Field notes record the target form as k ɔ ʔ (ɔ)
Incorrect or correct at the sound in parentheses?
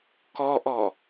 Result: correct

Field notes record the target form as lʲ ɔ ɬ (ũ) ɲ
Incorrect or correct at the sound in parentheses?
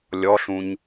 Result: correct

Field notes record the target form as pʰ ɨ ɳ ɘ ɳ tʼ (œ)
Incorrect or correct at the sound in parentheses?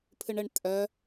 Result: correct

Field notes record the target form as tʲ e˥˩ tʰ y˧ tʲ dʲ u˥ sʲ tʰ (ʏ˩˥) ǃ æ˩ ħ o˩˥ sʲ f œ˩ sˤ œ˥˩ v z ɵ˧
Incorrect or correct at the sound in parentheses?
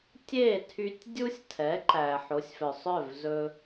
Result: incorrect: ɛ˩˥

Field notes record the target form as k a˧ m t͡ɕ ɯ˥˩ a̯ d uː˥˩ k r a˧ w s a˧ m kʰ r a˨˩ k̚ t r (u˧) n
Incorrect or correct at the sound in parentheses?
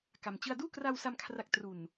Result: incorrect: u˨˩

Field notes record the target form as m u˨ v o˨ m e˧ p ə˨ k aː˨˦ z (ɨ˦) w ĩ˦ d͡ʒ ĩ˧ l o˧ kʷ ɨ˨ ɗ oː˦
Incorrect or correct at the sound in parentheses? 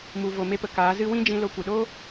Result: correct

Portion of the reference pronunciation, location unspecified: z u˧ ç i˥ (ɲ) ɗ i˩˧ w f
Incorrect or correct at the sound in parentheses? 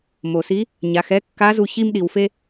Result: incorrect: m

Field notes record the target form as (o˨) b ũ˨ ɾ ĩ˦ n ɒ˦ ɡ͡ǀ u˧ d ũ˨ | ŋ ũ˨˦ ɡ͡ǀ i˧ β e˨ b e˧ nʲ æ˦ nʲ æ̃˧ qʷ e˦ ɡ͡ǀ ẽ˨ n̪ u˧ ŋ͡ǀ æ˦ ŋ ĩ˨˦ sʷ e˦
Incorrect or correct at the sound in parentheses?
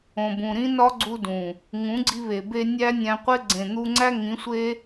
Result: incorrect: õ˨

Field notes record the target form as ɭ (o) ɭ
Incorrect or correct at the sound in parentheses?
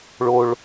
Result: correct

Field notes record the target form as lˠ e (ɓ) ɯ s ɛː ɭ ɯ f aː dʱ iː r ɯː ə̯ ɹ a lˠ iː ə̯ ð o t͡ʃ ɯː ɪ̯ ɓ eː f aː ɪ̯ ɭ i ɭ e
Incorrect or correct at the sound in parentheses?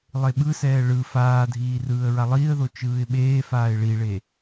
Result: correct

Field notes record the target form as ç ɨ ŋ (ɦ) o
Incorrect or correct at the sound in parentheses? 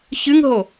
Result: correct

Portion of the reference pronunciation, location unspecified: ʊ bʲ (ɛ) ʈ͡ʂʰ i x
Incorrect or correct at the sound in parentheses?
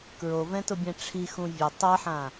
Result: incorrect: ɛ̃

